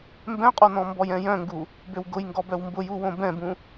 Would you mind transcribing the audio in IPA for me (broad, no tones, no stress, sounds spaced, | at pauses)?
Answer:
m b ɛ̃ qʼ o n ɔ̃ m b ɔ j ɛ̃ j œ̃ ŋ ɡ u | b ø w ɡ ʊ j ŋ ɡ ɔ b œ w m b ʊ j u w õ b ɛ̃ b ũ